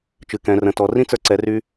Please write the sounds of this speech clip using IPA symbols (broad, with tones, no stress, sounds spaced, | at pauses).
t͡ʃ ɨ˩˧ k ɛ̃˩˧ r ə̃˩˧ t ɔ˩˧ r ĩ˥ t͡s ə˞˧ ǀ ɛ˩˧ r y˧